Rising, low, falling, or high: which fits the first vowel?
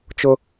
high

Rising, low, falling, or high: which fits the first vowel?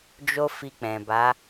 high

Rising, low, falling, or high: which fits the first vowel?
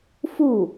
falling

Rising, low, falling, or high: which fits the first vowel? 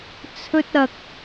high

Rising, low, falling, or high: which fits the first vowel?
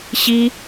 high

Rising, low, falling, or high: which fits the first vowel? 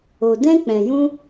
low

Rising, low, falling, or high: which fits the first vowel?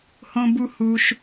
low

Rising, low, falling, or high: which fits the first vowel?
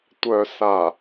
low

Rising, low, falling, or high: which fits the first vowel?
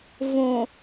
low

